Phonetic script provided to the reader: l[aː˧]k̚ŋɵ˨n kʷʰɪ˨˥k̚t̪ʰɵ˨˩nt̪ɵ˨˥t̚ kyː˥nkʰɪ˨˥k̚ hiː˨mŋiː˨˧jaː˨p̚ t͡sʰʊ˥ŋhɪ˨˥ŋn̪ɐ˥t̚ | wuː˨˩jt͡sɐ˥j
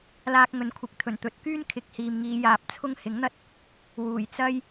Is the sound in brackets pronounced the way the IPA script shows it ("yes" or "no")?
yes